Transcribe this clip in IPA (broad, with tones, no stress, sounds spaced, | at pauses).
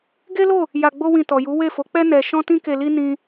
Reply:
ɡ e˦ l o˦˨ | j a˧ ɡ͡b o˦ w ĩ˧ t ɔ˨ j u˨˦ w e˦˨ f o˨˦ k͡p ɛ˦ n ɛ˧ ʃ ɔ̃˦ t ĩ˦ k e˧ l i˦ n ĩ˦